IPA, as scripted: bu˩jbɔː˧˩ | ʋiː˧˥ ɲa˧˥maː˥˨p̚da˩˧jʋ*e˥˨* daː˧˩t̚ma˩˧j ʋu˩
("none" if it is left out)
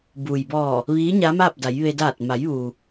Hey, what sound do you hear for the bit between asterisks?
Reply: e˧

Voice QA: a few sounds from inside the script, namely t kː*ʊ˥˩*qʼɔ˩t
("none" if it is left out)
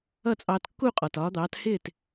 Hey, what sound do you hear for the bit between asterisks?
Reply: u˥˩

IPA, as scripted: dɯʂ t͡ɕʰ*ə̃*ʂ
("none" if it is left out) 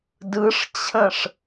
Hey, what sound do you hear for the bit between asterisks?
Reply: ə̃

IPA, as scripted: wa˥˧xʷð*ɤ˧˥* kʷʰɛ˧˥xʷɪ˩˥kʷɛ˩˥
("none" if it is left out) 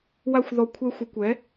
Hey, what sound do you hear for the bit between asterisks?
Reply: ɔ˧˥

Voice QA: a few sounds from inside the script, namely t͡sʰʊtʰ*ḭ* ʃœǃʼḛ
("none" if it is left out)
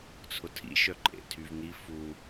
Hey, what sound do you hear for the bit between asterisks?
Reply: ḭ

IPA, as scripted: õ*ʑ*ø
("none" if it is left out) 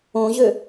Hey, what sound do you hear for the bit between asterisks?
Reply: ʑ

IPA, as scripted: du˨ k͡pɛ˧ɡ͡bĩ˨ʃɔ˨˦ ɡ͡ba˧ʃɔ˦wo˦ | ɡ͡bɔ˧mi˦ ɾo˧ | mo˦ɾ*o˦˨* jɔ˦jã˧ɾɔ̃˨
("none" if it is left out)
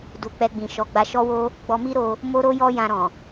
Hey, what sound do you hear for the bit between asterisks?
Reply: o˦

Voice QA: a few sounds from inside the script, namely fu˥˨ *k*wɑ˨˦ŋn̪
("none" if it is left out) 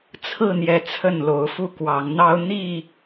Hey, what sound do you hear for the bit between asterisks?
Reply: k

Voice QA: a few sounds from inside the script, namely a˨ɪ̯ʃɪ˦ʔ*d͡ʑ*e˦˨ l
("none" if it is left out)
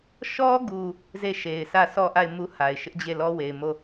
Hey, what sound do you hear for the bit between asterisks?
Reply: d͡ʑ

